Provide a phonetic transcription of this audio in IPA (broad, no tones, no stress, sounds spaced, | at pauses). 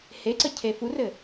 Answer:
h e ǀ ə cʰ e f u r ɘ